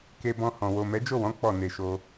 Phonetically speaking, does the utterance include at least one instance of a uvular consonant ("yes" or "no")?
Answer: no